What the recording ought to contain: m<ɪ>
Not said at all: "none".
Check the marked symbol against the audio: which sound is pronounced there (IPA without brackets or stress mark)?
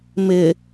ɪ